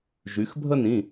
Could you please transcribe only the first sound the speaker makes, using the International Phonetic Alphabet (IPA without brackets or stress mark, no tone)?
ʒ